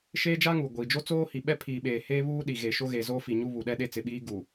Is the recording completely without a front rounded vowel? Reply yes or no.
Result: yes